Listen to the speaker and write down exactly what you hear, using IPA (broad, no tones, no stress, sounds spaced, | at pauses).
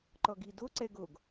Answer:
ǃ ɔ ɡ i d o ǀ ɛ ɡ o ɡ